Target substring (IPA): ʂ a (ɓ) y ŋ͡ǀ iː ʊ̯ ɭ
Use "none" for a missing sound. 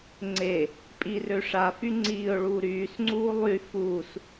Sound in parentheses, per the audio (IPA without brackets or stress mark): f